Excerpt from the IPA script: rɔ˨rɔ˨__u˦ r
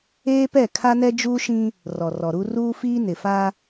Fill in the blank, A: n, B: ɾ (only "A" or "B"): B